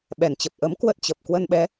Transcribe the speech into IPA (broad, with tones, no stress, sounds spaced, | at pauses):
ɓ ɛ˨˩ n t͡ɕ ə˨˩ p̚ ʔ ə˨˦ m k w ə˦˥ t̚ t͡ɕ ə˨˩ p̚ k w ə˧ n ɓ ɛ˨˦